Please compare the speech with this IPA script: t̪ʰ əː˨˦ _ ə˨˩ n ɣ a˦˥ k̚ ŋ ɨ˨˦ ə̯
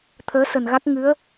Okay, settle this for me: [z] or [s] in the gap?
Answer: s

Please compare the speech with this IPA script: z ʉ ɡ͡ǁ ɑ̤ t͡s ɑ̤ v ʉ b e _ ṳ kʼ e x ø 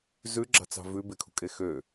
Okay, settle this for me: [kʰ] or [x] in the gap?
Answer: kʰ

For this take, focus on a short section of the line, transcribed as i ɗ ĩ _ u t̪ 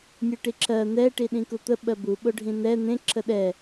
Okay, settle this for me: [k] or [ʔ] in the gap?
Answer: k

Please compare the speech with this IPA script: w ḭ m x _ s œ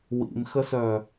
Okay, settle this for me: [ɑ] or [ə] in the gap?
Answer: ə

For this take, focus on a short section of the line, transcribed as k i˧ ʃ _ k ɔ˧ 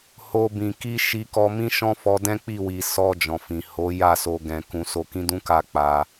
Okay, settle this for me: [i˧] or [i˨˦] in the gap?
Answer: i˧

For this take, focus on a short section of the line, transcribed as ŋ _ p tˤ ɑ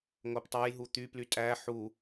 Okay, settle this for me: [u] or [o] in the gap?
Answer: o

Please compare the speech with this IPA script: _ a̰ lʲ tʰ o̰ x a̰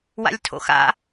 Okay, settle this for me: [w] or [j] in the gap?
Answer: w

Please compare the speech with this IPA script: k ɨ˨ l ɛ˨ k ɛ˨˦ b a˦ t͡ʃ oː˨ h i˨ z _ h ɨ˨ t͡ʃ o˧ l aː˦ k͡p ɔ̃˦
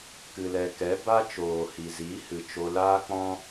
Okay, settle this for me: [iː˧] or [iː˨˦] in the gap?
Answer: iː˨˦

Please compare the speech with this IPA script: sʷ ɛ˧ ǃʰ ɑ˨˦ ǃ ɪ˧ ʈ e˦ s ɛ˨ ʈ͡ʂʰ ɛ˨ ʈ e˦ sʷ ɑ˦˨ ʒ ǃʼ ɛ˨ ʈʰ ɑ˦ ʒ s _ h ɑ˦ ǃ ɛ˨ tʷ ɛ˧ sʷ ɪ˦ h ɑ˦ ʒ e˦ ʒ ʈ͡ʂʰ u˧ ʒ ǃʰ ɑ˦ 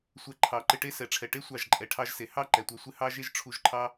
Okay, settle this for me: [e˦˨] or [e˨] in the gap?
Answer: e˨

